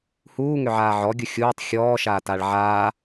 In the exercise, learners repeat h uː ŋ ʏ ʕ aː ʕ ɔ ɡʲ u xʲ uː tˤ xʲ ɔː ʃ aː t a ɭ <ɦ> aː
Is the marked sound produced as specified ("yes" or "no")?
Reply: no